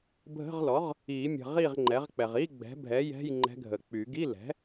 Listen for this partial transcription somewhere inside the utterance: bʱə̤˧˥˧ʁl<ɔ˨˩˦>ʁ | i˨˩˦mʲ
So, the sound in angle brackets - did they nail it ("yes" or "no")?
no